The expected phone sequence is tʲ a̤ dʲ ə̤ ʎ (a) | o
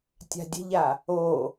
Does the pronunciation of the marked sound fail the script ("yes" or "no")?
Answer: no